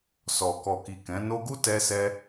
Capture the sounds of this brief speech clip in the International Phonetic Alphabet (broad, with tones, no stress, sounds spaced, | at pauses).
s ɔ˨ k ɔ˨ k i˨ k ɛ̃˨˦ n o˧ ɡ u˦ t ɛ˧ s ɛ˧